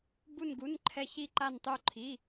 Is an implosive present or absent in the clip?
absent